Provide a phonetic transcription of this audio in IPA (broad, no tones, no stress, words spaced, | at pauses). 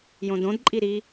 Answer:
jõdõdǃʼi ɾi